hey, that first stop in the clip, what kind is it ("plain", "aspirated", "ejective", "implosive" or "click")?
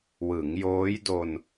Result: plain